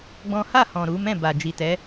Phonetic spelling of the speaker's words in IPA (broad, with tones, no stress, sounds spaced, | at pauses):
ɡ͡b ɔ̃˦ h a˦˨ h ɔ̃˨ ɾ u˨˦ m ɛ̃˦˨ b a˨ d͡ʒ i˨ t ɛ˨˦